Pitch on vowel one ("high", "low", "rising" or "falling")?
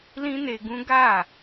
high